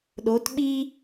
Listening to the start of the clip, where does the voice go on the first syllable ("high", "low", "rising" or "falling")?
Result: rising